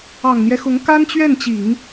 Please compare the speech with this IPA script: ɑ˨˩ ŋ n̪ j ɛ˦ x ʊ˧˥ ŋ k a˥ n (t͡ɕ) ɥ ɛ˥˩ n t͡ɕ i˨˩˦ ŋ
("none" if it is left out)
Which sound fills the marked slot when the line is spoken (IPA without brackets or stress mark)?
t͡ɕ